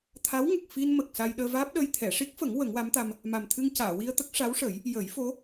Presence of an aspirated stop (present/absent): present